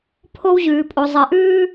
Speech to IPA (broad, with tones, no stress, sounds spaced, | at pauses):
pʰ o˦ w ʑ ʉː˨ pʼ o˨ zˤ ɜ˨ ʔ ʉː˦